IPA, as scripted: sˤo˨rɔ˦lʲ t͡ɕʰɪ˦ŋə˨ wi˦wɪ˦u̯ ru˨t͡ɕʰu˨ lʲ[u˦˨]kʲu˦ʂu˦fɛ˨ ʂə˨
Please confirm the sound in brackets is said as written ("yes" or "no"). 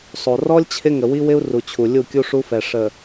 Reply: yes